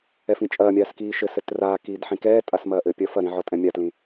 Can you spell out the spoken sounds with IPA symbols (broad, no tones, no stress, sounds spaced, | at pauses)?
ɛ f ĩ t͡ʃʼ ɐː mʲ aː s k iː ʃ ɘ s ɘ t r aː k iː d ħ ĩ k ɛː tʼ a s m ɐː ʔ ɘ pʲ ɐ f ɐ ɾ ĩ ʕ ɔ tʼ ɛ̃ mʲ a t l ĩ